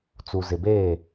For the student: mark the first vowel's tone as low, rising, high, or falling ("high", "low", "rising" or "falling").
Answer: low